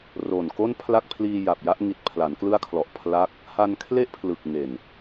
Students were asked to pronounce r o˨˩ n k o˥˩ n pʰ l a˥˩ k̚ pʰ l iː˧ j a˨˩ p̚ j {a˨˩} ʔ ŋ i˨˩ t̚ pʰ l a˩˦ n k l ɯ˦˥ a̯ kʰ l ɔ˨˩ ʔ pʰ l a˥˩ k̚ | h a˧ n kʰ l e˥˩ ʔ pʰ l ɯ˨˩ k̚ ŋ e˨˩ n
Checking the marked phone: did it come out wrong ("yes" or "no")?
yes